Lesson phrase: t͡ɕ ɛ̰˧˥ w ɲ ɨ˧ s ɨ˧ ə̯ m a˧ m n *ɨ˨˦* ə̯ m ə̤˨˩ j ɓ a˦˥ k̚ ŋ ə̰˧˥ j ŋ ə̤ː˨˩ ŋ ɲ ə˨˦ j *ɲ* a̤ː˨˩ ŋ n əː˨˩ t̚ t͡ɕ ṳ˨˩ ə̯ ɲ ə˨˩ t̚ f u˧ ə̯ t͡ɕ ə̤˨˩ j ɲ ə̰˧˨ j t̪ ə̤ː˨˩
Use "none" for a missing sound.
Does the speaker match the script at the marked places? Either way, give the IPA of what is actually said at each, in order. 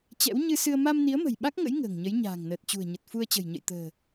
i˨˦, ɲ

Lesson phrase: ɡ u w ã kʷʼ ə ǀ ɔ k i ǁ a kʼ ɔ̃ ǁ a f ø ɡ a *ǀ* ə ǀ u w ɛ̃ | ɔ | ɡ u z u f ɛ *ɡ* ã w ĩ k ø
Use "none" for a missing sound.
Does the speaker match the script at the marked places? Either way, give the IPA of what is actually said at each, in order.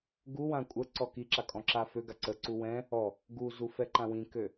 ǀ, ǃ

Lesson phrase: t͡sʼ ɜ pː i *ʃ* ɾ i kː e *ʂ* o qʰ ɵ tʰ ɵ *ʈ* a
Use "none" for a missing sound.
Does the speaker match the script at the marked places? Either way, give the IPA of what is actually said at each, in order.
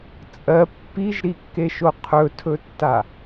ʒ, ʃ, tː

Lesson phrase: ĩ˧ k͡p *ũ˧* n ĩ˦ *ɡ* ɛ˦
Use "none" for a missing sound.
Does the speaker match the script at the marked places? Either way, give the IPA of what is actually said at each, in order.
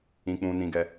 ũ˧, ɡ

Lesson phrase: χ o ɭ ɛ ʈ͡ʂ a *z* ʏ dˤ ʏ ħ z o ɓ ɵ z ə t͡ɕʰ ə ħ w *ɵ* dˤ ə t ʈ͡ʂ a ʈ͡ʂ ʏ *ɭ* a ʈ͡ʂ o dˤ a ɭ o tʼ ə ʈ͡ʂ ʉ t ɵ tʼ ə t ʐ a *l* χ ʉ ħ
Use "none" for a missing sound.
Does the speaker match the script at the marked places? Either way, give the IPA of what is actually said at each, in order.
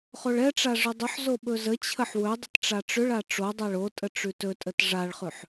ʐ, ɵ, ɭ, ɭ

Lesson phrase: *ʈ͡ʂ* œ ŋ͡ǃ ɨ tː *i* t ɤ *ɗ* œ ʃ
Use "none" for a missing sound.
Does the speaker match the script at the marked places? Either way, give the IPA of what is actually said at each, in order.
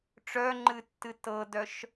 ʈ͡ʂ, ɨ, d

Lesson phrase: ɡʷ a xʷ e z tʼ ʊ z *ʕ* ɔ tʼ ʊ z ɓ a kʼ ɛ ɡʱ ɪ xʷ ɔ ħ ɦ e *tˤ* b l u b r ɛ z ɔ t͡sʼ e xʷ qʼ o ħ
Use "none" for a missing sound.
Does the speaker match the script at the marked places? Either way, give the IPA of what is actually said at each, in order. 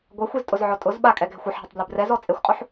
ʕ, tˤ

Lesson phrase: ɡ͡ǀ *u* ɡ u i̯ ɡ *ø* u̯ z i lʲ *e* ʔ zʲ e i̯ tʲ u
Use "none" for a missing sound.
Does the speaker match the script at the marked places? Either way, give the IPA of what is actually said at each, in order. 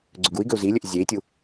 ø, ø, ø

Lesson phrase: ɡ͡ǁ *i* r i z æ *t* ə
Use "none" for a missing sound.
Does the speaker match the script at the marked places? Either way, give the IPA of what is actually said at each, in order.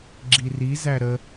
i, ɾ

